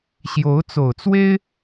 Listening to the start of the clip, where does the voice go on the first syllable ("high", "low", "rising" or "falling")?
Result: rising